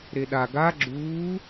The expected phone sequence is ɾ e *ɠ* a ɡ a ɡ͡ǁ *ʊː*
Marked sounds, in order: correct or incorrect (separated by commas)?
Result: incorrect, incorrect